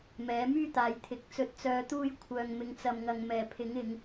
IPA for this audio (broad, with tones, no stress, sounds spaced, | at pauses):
m ɛː˨˥ m yː˥ t̪ aː˨˧ j t̪ʰ ɪ˨˥ k̚ t͡s ɵ˨˥ t̚ t͡s œː˨˧ t̪ uː˧ j kʷʰ œː˨ ŋ m ɪ˨ ŋ t͡s ɐ˨ m ŋ ɐ˨ ŋ m ɛː˨˩ pʰ ɪ˨˥ ŋ ɪ˨˧ ŋ